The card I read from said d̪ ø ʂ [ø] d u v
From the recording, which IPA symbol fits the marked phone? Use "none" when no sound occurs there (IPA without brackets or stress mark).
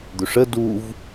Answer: ə